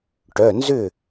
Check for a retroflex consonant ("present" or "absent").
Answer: present